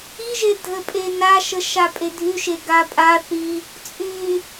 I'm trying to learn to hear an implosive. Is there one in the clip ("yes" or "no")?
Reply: no